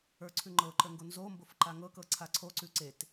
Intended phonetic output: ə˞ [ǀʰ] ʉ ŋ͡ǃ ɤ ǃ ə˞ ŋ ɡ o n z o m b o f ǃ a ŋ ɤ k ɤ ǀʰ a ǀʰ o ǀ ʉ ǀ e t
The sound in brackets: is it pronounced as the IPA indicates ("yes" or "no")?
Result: yes